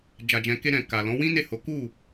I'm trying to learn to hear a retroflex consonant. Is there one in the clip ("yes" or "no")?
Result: no